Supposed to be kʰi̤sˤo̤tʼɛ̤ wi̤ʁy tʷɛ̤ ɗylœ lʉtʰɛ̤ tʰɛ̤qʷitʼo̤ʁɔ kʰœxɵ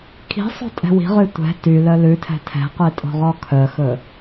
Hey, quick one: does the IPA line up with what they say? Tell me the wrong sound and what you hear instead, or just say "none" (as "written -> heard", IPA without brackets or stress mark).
ɗ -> t